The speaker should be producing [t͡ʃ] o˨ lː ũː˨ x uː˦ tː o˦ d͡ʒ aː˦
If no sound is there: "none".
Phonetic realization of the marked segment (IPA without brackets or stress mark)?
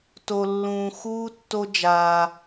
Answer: t